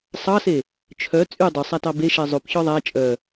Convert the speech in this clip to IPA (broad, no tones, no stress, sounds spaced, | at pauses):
sˤ ɑ s e | t͡ʃʰ œ t͡sʼ y dˤ ɵ sˤ æ t ɑ b e ʃ ɛ zˤ o p ç ɔ ðˤ æ t͡ʃʼ œ